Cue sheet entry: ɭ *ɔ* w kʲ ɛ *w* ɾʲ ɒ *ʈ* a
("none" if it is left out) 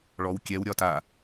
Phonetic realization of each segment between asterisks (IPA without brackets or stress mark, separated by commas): ɔ, w, t